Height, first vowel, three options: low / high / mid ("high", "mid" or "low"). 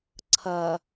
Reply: low